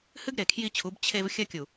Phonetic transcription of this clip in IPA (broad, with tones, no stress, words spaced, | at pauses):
hɨ˦ɡ ɾe˨kʰji˦t͡ɕʰu˨˦b t͡ɕʰe˦v xʲɐ˦kʲu˨